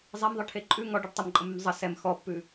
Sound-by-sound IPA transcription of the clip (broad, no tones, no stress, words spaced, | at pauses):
zˤemðˤɯʈʰe ǃʼʉ ŋɔɖɯɖ tˤəmǃʼəmʉm zˤə sɛm xɔpːʉ